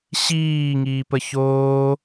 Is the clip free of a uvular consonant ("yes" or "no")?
yes